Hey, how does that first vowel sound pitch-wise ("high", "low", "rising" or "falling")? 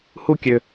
falling